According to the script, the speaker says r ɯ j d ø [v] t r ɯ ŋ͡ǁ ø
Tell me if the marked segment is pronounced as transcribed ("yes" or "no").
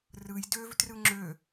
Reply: yes